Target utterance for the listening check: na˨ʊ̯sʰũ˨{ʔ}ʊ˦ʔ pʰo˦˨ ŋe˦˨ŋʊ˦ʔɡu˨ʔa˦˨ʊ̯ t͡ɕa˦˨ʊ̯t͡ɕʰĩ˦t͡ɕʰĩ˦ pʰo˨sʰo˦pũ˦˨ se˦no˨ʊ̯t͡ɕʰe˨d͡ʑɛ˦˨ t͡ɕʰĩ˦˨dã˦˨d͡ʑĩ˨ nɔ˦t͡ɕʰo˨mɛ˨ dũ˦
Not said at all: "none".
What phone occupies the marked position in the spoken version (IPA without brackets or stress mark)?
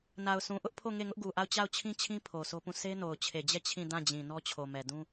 ʔ